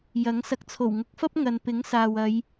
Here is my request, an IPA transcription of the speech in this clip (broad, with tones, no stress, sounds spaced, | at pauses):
j ɐ˨˥ ŋ s ɐ˨ k̚ t͡sʰ o˨˩ w ŋ ʊ˨˥ k̚ f ɐ˥ p̚ ŋ ɐ˨ n p ɪ˨˥ ŋ s aː˨ w ɐ˨˧ j